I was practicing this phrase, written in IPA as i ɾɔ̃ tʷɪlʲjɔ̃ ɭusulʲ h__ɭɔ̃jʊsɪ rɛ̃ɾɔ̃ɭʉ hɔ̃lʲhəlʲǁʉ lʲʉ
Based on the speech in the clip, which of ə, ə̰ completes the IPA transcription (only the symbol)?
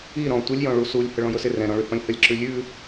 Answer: ə